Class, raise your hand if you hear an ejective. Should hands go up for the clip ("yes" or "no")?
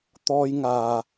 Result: no